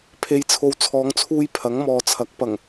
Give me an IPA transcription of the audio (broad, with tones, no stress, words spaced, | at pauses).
pʰe˨jt͡sʰo˨wt͡sʰɔː˨˧ŋt͡sʰuː˧j pʰɐ˨˥ŋmɔː˨t͡sʰɐ˨˥k̚ pɐ˨˩ŋ